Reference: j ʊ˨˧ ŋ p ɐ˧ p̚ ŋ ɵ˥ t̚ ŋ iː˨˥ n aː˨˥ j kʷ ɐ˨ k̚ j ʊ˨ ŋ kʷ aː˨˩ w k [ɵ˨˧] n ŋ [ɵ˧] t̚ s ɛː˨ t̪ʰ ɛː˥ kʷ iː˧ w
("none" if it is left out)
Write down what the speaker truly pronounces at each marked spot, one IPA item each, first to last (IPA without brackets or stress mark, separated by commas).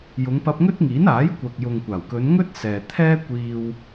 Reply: ɵ˨˧, ɵ˥